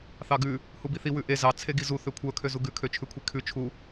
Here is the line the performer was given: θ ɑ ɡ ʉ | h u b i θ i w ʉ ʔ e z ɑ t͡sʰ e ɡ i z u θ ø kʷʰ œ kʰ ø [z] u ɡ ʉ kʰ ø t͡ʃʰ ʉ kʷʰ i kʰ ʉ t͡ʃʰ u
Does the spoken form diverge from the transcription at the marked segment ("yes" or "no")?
no